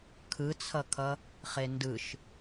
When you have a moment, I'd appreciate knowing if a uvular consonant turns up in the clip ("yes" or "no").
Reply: yes